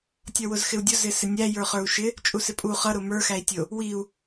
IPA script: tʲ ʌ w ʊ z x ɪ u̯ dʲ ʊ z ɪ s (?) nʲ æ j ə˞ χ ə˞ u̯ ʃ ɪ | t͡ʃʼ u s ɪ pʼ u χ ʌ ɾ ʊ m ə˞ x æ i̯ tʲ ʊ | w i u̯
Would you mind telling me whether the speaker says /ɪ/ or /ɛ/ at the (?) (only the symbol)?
ɪ